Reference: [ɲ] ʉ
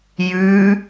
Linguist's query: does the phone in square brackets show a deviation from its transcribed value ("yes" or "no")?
yes